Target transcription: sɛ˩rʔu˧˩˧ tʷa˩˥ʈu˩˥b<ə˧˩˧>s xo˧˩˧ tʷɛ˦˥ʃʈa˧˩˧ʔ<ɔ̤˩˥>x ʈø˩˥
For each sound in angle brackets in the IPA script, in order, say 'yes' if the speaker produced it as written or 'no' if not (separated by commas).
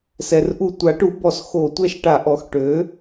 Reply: no, no